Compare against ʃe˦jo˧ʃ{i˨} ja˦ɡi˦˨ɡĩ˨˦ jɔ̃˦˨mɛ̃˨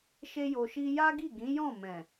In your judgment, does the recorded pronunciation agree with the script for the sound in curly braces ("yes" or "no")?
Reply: no